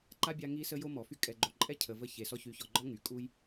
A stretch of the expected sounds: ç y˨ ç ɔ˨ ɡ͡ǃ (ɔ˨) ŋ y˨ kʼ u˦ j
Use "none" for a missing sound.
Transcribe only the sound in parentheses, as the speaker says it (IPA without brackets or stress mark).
ɔ˦